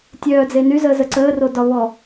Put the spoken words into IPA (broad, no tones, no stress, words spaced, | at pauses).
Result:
tʲœːd͡ze nyzəːzə ǀəːro dɒβɔ